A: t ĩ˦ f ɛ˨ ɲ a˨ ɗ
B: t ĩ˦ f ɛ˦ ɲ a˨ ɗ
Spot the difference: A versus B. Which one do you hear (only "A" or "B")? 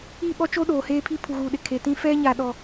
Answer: B